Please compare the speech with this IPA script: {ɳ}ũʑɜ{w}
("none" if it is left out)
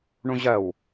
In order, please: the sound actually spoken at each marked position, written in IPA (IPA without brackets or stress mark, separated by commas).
ɳ, w